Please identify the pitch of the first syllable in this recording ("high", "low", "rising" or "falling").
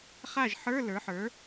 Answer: falling